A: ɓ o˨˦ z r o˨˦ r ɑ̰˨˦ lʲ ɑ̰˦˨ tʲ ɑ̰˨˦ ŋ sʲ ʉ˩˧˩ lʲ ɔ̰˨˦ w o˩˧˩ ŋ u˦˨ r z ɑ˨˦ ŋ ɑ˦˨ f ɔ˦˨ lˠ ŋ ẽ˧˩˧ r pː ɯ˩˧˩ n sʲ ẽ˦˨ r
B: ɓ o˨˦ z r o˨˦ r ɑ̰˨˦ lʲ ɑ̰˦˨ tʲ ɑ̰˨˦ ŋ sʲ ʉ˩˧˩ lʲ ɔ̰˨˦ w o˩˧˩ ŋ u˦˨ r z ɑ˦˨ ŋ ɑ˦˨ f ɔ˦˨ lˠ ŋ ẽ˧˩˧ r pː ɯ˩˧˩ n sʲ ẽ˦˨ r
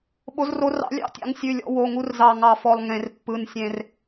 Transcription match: B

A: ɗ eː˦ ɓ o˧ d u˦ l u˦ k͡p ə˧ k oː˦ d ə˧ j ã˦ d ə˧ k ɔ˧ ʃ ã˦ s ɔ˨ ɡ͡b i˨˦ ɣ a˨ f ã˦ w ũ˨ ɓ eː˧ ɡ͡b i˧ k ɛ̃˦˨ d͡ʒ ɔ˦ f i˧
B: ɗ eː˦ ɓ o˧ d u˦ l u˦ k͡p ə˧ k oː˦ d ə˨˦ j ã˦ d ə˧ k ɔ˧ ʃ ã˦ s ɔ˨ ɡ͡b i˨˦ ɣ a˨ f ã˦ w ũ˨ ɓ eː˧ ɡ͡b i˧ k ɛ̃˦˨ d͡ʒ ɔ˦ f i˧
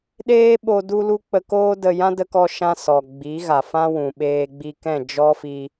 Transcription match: A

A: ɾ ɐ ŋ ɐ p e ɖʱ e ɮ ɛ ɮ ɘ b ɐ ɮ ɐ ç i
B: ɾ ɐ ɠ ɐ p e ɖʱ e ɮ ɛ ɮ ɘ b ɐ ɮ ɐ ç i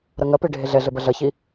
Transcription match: A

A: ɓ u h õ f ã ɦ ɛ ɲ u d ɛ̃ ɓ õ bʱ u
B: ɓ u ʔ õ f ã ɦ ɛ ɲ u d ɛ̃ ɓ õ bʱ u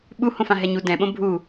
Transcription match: A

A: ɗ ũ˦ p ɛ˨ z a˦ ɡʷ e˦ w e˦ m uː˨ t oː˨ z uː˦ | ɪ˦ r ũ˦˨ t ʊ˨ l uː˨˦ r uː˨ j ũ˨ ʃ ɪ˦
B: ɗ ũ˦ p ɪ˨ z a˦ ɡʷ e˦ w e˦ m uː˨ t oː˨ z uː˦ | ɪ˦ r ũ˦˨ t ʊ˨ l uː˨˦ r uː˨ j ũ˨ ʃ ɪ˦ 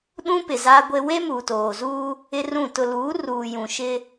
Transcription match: B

